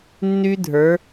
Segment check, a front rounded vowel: present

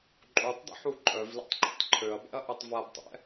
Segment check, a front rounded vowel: present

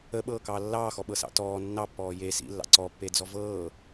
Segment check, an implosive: present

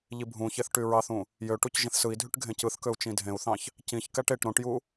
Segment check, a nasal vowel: present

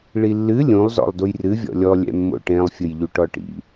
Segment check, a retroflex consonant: present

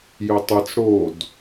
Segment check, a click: absent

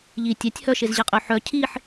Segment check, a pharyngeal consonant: present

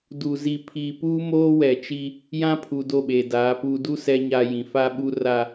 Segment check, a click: absent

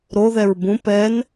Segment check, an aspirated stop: absent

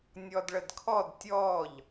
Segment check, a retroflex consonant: present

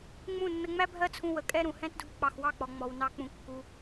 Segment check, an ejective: present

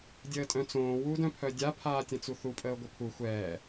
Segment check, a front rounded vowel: present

